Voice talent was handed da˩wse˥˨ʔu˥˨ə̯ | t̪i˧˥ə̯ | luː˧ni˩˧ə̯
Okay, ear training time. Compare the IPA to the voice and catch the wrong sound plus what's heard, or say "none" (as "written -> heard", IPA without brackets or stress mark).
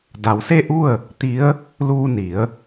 none